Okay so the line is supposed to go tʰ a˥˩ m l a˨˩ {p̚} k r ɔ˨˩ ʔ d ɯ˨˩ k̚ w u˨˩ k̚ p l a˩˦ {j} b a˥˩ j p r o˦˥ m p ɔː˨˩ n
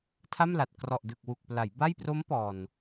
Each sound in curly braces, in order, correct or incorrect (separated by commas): incorrect, correct